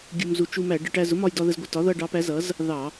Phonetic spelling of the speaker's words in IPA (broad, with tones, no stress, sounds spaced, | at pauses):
ɡʲ u˧ m z u˧ t͡ʃ u˧ m æ˧˩˧ ɖ ə˧ ʈ æ˧ z ʊ˩˥ m ɒ˧ j d ɒ˧ ð ə˧ z ɡʷ ɪ˧ t ɒ˩˥ ð ʌ˧ ɖ ɑ˩˥ p æ˩˥ z ʌ˩˥ z | ð ɑ˧˩˧